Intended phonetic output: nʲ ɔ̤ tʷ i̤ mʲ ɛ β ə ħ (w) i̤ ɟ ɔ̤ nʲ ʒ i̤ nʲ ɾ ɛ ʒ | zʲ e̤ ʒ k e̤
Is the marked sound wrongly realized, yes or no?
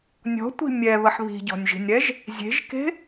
yes